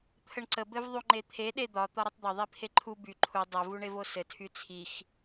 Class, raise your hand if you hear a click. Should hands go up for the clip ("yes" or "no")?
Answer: yes